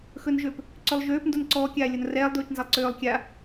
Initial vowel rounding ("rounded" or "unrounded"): rounded